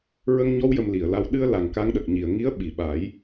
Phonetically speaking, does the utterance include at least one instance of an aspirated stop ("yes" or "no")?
no